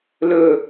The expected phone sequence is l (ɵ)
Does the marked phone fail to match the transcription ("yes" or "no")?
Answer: no